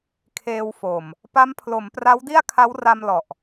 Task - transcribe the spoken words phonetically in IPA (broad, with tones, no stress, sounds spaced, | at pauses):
kʰ eː˧ w f o˨˩ m | p a˦˥ m pʰ l o˩˦ m p r a˦˥ w d i˥˩ a̯ kʰ a˦˥ w r a˧ m l ɔ˨˩ ʔ